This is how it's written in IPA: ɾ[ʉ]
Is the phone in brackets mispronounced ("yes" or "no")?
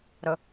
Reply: yes